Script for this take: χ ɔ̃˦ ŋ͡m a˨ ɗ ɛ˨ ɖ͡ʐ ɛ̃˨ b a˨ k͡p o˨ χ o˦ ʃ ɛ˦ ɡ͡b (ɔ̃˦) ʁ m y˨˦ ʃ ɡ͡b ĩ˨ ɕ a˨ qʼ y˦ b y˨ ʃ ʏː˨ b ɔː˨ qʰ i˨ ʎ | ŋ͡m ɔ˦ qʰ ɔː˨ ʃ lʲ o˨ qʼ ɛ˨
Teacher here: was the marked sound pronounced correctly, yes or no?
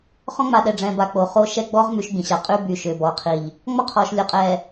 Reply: no